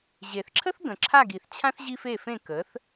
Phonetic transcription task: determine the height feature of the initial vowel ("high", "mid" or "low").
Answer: mid